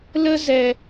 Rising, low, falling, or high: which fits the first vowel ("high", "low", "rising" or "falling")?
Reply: high